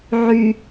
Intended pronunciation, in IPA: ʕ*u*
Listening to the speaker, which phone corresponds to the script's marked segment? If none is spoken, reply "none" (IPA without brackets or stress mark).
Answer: y